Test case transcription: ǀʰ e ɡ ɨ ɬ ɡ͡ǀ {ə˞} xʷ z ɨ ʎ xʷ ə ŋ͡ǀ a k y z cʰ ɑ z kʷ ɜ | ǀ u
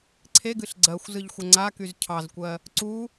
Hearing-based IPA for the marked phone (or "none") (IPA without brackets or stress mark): ɜ